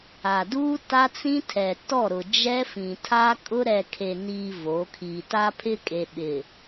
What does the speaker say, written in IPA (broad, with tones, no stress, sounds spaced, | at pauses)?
a˨ d uː˦ t a˦ t͡s ĩ˦ tʰ ɛ˨ t ɔ˦˨ ɾ ʊ˨ d͡ʒ ɛ˦ f ĩ˨ tʰ a˦ kʼ ʊ˦ ɾ ɛ˨ kʰ e˨ n iː˨ v o˨˦ kʰ i˨ t a˦ pʰ ɪ˦ kʼ e˨ ɓ ɪ˨